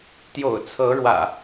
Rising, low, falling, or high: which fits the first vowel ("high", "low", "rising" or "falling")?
low